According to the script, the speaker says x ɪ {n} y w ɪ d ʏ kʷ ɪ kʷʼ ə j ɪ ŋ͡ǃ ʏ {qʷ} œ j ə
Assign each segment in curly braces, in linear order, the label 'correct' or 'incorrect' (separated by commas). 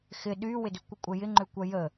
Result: incorrect, incorrect